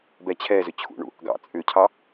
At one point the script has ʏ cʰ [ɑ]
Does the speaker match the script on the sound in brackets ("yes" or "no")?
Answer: yes